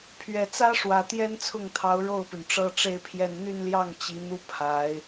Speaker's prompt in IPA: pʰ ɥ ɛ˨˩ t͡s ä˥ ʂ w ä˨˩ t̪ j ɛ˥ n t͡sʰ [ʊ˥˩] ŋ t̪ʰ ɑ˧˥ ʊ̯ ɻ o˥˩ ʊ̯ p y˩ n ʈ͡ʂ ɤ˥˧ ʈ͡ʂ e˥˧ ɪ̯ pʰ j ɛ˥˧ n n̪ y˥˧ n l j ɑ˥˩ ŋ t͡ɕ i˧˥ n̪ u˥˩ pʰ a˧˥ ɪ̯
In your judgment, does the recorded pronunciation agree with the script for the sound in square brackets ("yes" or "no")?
yes